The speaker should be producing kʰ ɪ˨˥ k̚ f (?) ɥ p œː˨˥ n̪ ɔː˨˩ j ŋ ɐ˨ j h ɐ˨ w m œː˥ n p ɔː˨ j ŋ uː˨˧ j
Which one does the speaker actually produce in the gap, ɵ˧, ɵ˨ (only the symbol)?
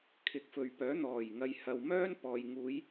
ɵ˨